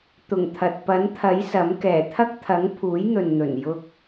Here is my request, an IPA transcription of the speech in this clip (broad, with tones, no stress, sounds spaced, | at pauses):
t̪ ʊ˨˩ ŋ t̪ʰ ɐ˨ t̚ p ɐ˨˥ n t̪ʰ ɐ˨˥ j s ɐ˨˥ m k ɛː˨˩ t̪ʰ ɐ˥ k̚ t̪ʰ ɐ˨˥ ŋ pʰ uː˨˥ j n̪ ɵ˨ n n̪ ɵ˨˩ n j ʊ˧ k̚